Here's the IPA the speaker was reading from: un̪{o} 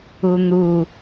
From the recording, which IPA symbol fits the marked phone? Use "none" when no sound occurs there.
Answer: u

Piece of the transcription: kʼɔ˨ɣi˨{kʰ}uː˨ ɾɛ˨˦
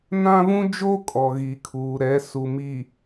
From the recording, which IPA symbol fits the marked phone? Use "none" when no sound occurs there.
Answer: kʰ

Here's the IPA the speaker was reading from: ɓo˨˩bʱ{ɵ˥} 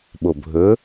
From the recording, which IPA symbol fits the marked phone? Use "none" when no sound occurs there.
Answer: ɵ˨˥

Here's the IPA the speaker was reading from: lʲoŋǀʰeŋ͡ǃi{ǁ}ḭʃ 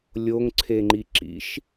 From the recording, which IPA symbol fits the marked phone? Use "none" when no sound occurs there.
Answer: ǁ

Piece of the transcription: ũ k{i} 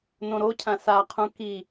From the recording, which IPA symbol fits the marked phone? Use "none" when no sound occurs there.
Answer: i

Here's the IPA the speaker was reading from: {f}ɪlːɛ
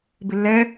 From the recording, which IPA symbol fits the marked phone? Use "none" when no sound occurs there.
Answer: b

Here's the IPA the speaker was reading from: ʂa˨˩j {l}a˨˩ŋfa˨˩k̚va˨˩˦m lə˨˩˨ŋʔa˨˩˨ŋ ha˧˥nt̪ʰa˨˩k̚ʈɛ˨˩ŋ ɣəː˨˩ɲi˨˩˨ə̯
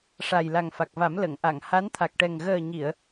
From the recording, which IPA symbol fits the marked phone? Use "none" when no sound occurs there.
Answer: l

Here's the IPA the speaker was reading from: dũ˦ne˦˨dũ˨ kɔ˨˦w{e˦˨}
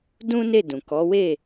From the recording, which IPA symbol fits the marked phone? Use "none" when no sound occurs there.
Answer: e˦˨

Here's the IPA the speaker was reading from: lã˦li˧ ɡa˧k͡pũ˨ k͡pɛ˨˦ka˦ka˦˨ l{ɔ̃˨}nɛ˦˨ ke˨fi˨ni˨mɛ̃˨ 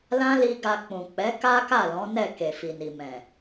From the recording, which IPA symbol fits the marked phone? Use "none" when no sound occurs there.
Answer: ɔ̃˨˦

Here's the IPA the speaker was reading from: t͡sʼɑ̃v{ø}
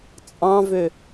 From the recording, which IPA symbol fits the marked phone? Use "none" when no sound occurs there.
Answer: ø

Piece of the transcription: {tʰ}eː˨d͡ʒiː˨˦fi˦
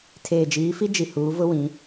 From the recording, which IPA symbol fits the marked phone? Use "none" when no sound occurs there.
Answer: tʰ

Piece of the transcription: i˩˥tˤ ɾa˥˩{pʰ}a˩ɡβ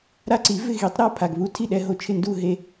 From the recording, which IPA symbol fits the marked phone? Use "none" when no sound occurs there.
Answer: pʰ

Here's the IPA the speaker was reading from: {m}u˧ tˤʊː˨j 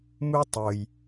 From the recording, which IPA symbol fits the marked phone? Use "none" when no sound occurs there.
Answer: m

